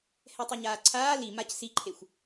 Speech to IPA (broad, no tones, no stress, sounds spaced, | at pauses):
h ɛ tˤ ʌ ɲ aː ǀʰ aː l i m a c s i ǃʰ e xʷ